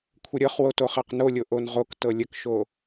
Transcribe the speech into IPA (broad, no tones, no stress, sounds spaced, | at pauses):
kʷʰ ə ɾʲ ɤ χ w o t o χ a q n o lʲ o ʔ o n ʁ o k t ɤ lʲ ə k ʃ o